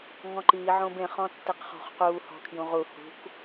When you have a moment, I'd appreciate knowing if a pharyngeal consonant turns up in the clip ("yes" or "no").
yes